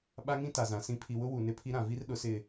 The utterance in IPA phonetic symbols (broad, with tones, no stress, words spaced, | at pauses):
ɓa˦ŋĩ˦ ta˨zã˨sĩ˦ pʰi˨wʊ˦ wu˨nɪ˦pʰi˦ ɾã˨vi˦r ɗʊ˨˦sɪ˦˨